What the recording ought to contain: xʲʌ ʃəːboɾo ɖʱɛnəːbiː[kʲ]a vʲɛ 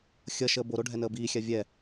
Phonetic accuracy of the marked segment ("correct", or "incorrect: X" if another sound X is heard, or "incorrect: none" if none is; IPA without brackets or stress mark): incorrect: xʲ